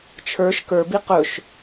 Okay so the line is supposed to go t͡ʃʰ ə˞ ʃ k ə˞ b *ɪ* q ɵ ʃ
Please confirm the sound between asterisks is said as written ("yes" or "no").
no